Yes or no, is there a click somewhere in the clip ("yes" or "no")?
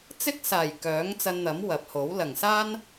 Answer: no